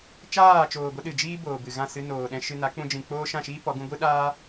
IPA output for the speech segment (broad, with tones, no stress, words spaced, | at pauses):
t͡ʃaː˦˨t͡ʃoː˨ɡʷə˧ ɗɨ˨d͡ʒiː˦boː˨ bɨ˨ɣã˦˨ sɨ˧noː˨ ɗɛ̃˨ʃɨ˨ na˨˦k͡pũ˧d͡ʒĩ˨k͡poː˦ ʃã˦˨ʃiː˦ pɔ˨˦ɡũ˧ ɡʷɨ˦ɗaː˦